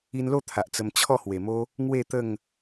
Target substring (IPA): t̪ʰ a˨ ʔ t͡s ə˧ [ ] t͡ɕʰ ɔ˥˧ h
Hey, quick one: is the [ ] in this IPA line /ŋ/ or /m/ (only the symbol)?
m